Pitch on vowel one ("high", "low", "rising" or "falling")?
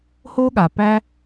high